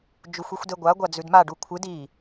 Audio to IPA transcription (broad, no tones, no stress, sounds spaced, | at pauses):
d͡ʒ u xʷ i xʷ d e ɡʷ a ɡʷ a d͡z ʉ d m a ɖ u kʷʰ ɨ d i